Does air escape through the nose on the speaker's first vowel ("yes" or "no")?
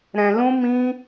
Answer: yes